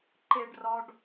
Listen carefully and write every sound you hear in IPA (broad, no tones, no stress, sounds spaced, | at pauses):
ǃ e ɖ r ɒ ɖ